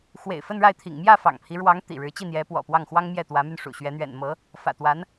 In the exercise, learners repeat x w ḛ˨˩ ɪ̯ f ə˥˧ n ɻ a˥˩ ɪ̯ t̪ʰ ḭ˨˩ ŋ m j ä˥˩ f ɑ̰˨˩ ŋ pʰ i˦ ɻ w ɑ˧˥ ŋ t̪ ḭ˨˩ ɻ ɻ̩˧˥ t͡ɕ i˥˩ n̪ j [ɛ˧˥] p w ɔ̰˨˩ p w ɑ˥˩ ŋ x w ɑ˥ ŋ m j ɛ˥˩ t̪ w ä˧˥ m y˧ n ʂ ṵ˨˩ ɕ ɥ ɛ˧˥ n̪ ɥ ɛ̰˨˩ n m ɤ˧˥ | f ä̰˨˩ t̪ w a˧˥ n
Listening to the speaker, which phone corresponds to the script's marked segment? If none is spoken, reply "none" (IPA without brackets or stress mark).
ɛ˧˥